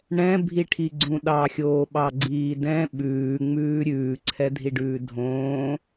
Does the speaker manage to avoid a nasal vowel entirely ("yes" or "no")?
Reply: no